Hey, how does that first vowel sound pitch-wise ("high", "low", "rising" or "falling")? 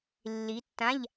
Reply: rising